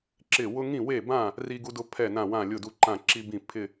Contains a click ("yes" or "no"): yes